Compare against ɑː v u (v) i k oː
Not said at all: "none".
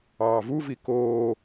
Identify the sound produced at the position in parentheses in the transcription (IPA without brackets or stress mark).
v